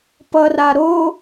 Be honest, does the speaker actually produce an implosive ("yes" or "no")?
no